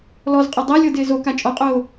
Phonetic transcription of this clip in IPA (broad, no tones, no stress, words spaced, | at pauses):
lɔzqʼo dˤælʲɤdɪː zoka t͡ʃʼɔqʼoː